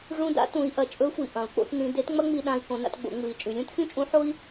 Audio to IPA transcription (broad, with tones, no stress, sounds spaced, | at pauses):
ʐ ũ˧ d a̰˧˥ t ũ˩˧ i̯ ʔ ɐ˩˧ t͡ʃʼ ɵ˧˥ xʷ i˩ ʔ ɐ̃˩˧ u̯ k͡p o̰˧ t n ĩ˧ d e˧˥ t ŋ͡m ɐ˥ ŋ͡m i˧ ɗ ã˧ i̯ k õ˩˧ n a̰˧ t ɡ͡b o̰˩˧ ŋ͡m ɨ˩˧ i̯ t͡ʃʼ ʉ˩˧ lʲ ũ˥ t xʲ ũ˥ t͡ʃʼ ũ˧˥ ħ o˥ i̯